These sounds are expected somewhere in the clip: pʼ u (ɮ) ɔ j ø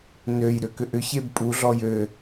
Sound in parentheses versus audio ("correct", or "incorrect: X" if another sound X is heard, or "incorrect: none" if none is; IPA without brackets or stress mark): correct